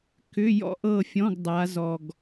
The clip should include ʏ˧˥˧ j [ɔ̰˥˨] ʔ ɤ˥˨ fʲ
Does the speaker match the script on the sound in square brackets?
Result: yes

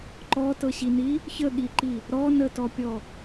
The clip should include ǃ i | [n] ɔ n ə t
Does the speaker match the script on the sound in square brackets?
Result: no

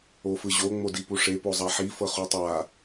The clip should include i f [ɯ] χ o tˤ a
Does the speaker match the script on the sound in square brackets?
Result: no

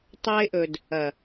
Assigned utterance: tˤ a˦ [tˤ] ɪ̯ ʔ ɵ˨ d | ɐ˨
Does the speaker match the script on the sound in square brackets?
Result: no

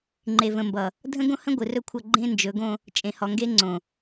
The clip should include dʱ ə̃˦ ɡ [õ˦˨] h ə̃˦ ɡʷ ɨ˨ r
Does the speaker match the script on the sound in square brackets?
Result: no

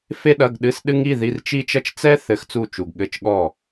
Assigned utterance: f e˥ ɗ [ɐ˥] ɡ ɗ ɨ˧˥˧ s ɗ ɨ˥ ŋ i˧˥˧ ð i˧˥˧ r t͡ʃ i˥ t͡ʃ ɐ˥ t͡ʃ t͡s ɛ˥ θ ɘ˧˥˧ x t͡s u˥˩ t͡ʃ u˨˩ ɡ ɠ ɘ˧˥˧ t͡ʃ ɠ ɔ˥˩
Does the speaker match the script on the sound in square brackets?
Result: no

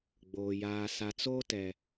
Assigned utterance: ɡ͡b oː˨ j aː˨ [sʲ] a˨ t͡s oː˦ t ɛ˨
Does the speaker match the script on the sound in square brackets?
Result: no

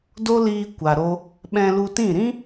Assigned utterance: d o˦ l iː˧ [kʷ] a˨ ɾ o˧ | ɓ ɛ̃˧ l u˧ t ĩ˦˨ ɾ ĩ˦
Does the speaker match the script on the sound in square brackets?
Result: yes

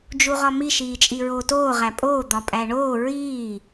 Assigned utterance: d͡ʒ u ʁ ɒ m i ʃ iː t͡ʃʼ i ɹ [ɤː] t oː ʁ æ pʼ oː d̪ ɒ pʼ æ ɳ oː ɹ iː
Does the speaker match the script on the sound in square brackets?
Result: no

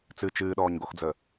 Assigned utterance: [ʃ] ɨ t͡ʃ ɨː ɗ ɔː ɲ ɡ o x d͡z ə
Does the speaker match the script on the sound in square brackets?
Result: no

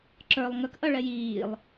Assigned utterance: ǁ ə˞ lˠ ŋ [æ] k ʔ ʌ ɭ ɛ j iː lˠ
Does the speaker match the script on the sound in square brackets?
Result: no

